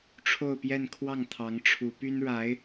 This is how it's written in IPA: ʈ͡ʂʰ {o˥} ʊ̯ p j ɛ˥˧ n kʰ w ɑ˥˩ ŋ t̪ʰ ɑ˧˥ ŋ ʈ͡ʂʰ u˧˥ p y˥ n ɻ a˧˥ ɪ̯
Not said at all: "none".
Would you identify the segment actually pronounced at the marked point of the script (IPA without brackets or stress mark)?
o˥˧